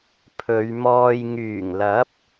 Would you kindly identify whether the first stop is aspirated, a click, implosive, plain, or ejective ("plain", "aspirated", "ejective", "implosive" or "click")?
aspirated